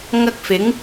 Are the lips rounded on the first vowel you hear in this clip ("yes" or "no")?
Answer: no